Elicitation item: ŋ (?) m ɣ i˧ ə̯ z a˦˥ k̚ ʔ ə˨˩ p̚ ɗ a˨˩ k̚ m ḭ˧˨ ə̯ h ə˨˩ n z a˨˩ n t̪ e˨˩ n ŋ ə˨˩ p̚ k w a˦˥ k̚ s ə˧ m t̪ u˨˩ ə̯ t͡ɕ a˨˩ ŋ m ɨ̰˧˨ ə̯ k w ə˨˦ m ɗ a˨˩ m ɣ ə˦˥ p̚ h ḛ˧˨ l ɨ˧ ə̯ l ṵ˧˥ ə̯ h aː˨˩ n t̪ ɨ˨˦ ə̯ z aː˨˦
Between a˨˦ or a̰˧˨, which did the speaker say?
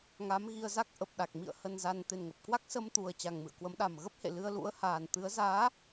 a˨˦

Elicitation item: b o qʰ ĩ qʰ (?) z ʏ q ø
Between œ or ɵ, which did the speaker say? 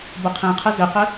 ɵ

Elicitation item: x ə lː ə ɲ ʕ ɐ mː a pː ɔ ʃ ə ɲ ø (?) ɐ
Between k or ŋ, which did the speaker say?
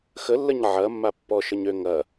ŋ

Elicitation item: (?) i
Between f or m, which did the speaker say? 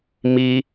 m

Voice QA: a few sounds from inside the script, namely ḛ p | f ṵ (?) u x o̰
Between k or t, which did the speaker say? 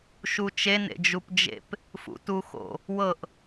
t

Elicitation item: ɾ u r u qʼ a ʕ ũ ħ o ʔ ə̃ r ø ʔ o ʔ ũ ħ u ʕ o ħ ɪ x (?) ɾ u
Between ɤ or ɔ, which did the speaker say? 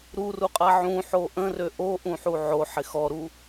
ɔ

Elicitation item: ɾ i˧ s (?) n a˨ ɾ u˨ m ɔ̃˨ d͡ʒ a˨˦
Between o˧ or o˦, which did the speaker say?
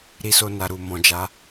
o˧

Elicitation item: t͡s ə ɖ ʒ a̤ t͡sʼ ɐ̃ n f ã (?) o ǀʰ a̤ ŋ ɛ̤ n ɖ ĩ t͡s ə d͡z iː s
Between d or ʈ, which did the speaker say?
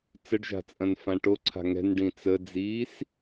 ʈ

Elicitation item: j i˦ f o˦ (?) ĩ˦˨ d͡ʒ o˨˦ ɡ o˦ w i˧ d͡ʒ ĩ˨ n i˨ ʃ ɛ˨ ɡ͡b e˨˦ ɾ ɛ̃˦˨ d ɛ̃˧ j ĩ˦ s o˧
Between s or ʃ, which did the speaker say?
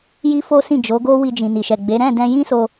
s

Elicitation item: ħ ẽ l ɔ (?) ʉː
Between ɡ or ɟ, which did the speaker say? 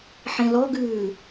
ɡ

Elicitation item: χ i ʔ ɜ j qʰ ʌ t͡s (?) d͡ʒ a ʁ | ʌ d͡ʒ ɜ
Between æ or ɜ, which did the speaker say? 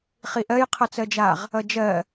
ɜ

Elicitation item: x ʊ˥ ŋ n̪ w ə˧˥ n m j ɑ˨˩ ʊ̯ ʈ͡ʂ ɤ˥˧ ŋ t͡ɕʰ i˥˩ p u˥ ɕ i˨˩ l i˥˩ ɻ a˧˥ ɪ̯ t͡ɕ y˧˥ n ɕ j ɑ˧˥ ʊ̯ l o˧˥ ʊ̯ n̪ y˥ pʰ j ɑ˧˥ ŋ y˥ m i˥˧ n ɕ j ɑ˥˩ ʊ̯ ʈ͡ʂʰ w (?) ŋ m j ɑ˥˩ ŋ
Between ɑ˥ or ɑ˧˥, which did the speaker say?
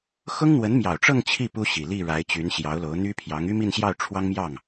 ɑ˥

